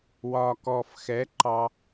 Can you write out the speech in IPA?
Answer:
w ɒ˨ k ɔ˨ f x ɛ˨˦ ǃ ɑ˧

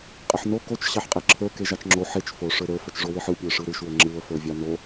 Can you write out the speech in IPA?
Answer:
qʼ ɘ ħ n o k o t͡ʃ ɕ ɑ ħ qʼ e ǁʰ ə˞ k e ʒ ɑ t͡ʃ ŋ͡ǁ o ħ e t͡ʃ f o ʂ ə˞ ɾ ə˞ f ɘ t͡ʃ ʐ o w e ħ ɯ pʲ ə˞ ʂ ɯ ɾ ɯ ʃ w ɘ ŋ͡ǁ ɯ ə̯ f ə˞ vʲ ɑ n o

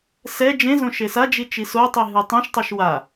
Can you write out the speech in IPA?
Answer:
s ɛ d͡ʒ ẽ z õ ʃ e s a d͡ʒ i t͡ʃ i s o tˤ i ɦ ɯ tˤ ẽ ʃ tˤ o ʃ w a

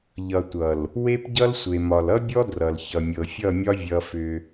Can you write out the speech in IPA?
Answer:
ʎ ʌ˨ tʷ ʌ˨ l | w e˦ p ɟ ʌ˦ l sʷ e˨ m ɒ˨ l ʌ˦ bʲ ɔ˦ d r ʌ˨ l ç ʌ˨ mʲ ɤ˨ fʲ ʌ˦˨ mʲ ɒ˦ vʲ ʌ˦ f ʏ˦

